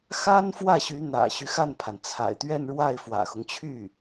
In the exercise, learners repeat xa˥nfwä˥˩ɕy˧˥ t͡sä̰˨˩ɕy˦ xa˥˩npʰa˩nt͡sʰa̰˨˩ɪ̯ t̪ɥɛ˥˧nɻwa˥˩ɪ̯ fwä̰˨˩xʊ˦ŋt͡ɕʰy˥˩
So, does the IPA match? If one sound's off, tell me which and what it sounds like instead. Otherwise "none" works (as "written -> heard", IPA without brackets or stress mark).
t͡s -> n̪